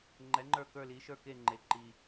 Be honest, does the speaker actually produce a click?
yes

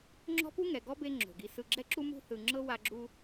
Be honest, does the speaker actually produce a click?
yes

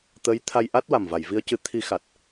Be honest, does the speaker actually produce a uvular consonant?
no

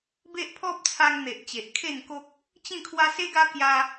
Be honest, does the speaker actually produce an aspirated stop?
yes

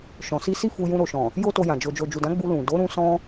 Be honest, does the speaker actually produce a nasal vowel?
yes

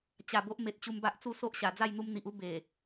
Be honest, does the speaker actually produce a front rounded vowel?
no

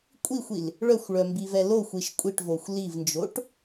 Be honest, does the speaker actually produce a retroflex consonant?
yes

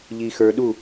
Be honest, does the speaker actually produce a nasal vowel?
no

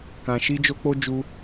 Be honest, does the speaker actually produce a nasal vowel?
yes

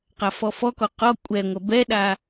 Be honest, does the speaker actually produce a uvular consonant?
yes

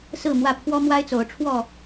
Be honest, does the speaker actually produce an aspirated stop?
yes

